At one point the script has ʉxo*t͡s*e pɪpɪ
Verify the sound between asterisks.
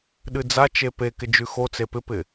correct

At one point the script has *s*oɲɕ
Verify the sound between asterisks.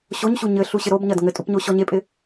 incorrect: ɕ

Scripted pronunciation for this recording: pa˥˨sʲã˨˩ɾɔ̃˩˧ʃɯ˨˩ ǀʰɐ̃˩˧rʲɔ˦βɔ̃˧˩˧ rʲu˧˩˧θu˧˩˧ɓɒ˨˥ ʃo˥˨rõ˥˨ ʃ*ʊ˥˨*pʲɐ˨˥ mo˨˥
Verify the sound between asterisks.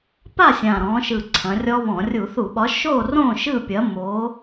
incorrect: ɯ˥˨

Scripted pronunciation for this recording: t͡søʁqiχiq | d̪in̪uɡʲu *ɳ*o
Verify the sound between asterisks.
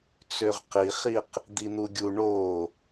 correct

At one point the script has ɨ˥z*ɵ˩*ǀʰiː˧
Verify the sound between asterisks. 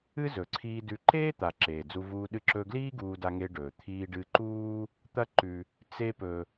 correct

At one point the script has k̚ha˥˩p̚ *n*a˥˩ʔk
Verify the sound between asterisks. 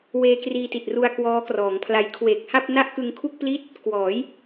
correct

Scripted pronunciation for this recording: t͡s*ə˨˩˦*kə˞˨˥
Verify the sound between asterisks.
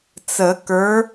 correct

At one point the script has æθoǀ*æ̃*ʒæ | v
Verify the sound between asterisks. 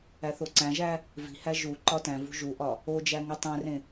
correct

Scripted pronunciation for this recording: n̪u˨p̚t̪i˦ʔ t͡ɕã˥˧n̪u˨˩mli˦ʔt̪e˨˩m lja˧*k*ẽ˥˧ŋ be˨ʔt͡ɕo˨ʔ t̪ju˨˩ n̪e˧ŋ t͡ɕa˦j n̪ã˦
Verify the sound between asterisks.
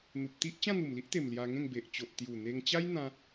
incorrect: ŋ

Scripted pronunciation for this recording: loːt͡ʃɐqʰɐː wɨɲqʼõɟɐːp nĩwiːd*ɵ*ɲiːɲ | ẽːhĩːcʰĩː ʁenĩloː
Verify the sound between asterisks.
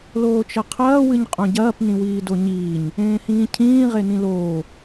incorrect: o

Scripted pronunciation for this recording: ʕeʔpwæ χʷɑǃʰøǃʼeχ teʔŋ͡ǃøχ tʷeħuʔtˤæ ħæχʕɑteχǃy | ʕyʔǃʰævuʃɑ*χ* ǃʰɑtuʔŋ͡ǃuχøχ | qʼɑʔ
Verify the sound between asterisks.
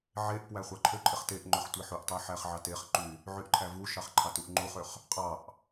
correct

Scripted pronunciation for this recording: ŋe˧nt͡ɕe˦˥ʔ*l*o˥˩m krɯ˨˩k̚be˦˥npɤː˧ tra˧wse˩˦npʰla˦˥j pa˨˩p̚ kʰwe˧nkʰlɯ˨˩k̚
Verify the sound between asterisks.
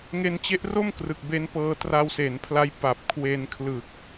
incorrect: r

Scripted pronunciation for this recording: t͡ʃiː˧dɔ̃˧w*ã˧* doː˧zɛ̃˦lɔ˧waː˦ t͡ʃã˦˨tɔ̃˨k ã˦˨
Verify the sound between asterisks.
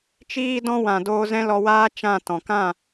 incorrect: ã˨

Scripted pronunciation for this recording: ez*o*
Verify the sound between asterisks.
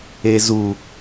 incorrect: u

